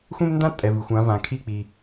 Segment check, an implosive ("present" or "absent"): absent